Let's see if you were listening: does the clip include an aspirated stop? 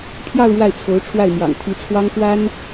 yes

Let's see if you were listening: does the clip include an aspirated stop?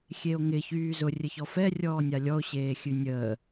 no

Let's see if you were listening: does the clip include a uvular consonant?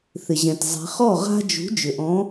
yes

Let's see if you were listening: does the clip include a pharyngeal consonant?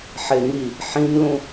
yes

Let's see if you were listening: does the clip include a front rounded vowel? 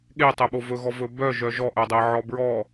yes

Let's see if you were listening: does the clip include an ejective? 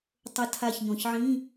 no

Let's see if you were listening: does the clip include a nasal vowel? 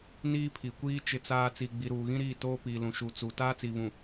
yes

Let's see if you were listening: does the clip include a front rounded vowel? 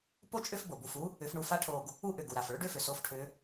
yes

